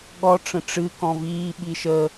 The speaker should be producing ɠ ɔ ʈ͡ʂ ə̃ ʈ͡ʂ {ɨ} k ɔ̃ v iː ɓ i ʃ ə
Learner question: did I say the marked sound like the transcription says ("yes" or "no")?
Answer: yes